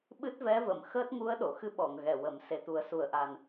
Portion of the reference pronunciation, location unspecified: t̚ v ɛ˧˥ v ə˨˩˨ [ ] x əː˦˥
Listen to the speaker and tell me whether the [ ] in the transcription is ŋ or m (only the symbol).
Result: m